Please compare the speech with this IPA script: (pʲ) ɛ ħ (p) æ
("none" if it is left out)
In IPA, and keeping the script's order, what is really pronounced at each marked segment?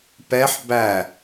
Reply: p, b

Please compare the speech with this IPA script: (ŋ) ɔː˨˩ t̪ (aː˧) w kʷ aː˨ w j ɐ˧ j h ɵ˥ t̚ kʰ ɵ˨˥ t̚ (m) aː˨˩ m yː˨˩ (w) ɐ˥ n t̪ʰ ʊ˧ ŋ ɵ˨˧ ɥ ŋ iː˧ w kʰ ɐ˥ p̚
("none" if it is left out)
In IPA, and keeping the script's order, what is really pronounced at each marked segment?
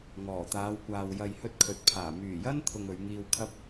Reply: ŋ, aː˨˧, pʰ, j

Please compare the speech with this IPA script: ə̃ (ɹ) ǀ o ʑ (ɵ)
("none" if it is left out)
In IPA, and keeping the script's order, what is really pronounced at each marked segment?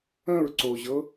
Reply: ɹ, ɤ

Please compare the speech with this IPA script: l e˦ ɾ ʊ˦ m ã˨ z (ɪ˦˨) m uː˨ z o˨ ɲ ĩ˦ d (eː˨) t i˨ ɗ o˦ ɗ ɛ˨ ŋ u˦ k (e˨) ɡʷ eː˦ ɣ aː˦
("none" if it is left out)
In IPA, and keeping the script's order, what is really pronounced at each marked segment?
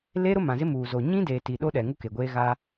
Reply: ɪ˦, eː˨, e˨

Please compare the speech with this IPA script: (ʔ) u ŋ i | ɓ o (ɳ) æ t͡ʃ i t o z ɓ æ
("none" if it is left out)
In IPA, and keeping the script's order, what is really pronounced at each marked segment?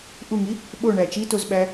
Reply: ʔ, ɳ

